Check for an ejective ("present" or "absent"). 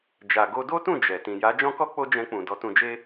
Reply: absent